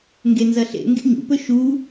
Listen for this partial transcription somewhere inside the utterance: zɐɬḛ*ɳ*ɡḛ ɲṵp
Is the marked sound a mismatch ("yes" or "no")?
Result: yes